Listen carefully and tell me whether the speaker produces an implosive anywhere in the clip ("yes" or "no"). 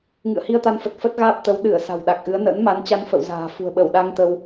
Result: yes